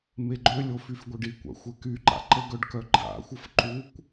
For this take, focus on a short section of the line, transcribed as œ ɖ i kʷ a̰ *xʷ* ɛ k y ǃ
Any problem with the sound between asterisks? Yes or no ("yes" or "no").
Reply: no